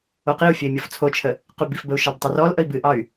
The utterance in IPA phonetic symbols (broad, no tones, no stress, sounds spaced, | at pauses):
o q i u̯ fʲ ə i̯ mʲ ɔ f t͡sʰ o t͡ʃʰ ə | q y b i f b ə u̯ ʃ ɑ b tˤ ə r ɔ l ʔ ə i̯ b ɨ ʔ ɑ y̯